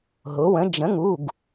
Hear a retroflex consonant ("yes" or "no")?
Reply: no